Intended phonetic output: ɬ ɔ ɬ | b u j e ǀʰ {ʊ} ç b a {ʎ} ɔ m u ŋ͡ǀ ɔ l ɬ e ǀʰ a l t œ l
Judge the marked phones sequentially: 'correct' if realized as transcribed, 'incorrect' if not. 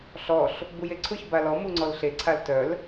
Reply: correct, incorrect: l

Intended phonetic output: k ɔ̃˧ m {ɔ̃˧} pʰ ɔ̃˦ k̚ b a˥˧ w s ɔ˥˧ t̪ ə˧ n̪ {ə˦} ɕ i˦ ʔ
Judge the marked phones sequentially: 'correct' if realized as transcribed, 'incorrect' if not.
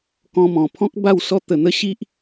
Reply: incorrect: ɔ̃˨˩, incorrect: ə˥˧

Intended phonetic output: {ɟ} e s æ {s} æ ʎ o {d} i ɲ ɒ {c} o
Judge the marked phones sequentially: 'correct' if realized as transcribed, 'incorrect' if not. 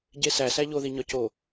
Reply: correct, correct, incorrect: ð, correct

